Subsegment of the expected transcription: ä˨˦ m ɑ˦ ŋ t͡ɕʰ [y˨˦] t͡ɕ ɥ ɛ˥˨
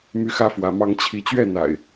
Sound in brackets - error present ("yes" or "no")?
yes